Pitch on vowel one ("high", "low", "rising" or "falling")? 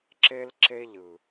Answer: high